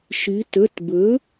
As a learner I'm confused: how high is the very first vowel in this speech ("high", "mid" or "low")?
high